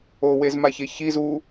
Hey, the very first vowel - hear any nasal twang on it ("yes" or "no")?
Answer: no